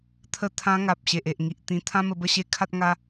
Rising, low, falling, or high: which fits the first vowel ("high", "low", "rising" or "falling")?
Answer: falling